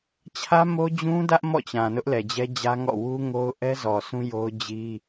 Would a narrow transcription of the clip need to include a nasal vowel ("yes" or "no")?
yes